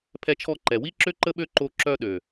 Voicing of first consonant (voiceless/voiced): voiceless